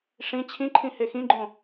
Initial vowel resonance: nasal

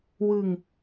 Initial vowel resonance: oral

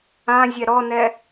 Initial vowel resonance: nasal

